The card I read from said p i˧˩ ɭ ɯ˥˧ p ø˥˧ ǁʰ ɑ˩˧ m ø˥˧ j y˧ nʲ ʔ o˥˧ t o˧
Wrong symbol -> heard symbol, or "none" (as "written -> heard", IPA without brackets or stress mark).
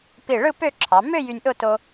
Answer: none